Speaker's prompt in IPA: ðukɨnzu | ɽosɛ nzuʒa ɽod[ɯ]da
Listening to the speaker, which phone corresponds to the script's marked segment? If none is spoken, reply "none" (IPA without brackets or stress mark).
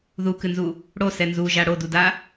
u